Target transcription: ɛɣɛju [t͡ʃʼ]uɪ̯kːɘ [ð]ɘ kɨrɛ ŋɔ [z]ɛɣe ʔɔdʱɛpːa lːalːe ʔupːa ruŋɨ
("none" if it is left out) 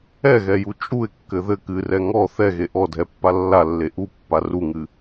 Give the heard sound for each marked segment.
t͡ʃʼ, ð, θ

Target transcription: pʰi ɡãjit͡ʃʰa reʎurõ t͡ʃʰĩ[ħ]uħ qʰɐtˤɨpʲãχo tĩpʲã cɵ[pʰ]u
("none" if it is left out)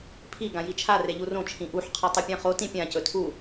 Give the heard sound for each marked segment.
ʔ, tʰ

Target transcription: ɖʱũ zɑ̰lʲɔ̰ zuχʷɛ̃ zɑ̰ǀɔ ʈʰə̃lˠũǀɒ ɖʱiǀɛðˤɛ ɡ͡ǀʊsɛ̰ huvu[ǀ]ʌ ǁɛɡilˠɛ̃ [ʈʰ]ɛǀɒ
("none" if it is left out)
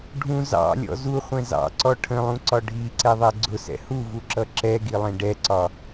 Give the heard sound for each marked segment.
ǁ, ɖ

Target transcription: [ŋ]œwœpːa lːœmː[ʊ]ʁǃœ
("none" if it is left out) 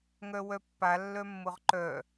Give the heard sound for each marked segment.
ŋ, ʊ

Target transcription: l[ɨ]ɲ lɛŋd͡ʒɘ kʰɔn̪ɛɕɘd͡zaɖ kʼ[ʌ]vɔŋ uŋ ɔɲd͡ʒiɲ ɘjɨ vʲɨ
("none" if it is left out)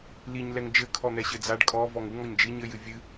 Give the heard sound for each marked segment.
i, ɔ

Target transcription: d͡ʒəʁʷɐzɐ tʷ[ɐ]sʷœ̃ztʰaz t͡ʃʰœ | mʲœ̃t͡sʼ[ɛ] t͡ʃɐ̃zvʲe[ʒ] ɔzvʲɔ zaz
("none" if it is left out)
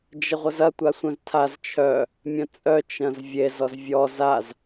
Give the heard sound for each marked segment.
a, œ, z

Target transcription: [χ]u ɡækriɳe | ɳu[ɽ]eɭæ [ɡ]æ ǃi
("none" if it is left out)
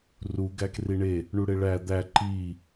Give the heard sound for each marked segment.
r, ɽ, d̪

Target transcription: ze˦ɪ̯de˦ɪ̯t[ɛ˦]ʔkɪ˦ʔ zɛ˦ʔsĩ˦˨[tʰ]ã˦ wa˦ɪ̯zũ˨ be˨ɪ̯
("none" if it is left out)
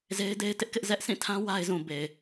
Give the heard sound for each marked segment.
ɪ˦, tʰ

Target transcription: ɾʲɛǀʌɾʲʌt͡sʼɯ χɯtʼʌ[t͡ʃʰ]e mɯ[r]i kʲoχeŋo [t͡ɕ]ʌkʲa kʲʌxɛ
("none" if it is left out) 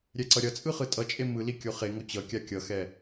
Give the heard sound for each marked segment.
t͡ʃʼ, l, t͡ɕ

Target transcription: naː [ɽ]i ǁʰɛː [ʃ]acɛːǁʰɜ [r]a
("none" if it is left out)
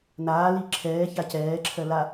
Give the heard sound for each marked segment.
l, ç, l

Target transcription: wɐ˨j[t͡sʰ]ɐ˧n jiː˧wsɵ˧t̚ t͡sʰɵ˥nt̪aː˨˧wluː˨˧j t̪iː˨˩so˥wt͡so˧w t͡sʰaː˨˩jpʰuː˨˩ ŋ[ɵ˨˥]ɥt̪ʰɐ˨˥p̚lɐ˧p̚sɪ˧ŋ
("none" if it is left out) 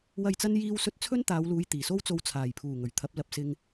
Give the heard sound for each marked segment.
t͡s, ɵ˨˩

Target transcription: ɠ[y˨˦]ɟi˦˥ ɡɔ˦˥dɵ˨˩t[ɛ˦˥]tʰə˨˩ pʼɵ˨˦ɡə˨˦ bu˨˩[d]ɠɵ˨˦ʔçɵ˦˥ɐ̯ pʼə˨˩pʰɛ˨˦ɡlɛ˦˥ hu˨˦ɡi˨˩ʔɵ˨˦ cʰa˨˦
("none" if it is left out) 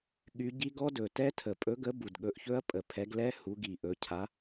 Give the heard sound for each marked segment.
y˨˦, ɛ˦˥, d

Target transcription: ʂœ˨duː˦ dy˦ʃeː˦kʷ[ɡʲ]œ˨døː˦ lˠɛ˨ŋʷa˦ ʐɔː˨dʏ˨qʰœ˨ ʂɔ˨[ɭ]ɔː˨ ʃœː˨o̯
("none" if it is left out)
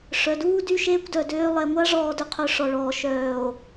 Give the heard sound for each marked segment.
d, ɭ

